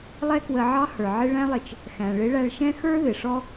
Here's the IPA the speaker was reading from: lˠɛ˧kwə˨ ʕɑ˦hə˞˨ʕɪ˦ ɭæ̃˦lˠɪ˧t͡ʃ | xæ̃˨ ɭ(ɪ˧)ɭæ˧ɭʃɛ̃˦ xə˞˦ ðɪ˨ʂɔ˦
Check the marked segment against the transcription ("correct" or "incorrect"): incorrect